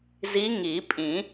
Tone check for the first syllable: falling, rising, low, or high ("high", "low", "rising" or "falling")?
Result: rising